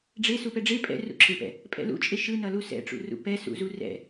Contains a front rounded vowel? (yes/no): no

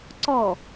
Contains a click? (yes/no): yes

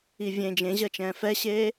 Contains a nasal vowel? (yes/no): yes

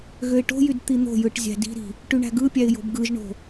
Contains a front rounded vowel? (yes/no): yes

